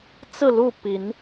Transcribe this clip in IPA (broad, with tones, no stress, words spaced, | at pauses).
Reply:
t͡sɹ̩˥˨lu˥˨ pi˨˦n